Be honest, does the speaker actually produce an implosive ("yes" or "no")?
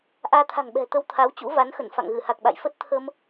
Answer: yes